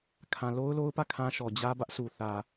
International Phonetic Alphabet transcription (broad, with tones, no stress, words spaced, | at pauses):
kʰã˨lo˦ʊ̯lo˦ʊ̯pä˦˨ kʰã˦ʃɔ˨ d͡ʑä˦ bä˦ʔsʰu˨ θä˨